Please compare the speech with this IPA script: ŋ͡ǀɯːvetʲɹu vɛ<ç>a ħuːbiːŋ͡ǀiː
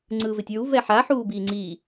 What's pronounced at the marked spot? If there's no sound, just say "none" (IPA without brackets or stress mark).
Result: ħ